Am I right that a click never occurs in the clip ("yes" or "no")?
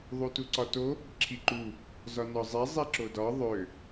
no